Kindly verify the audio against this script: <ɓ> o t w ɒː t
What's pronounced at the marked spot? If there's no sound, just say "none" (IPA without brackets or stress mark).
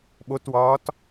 ɓ